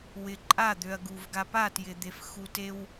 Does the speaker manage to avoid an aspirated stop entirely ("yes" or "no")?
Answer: yes